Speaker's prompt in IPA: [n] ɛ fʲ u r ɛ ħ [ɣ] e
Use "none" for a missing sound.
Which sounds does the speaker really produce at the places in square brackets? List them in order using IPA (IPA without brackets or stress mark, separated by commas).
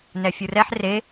n, r